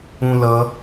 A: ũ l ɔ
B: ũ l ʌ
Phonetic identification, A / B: B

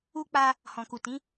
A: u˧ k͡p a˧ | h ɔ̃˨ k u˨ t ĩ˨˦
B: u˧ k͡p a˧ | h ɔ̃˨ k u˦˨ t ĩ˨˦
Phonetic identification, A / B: A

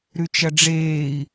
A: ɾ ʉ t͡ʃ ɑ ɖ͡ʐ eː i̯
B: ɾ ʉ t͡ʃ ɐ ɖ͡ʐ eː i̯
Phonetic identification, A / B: B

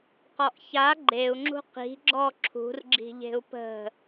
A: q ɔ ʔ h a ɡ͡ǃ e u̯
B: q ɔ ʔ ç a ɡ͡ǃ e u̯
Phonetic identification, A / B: B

